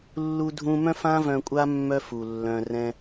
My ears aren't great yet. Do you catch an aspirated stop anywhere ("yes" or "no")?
no